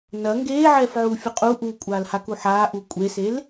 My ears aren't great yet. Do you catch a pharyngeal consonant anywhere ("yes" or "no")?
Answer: yes